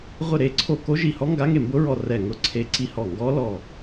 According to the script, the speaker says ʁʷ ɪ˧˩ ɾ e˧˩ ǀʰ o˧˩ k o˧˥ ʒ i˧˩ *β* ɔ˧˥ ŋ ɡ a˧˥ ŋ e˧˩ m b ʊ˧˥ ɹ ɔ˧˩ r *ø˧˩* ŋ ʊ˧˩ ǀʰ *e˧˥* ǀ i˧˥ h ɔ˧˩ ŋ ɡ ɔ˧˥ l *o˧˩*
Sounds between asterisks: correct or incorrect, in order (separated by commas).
incorrect, incorrect, correct, incorrect